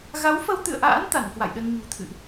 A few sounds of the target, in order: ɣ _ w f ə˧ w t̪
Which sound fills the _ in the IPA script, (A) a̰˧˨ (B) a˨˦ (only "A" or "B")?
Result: B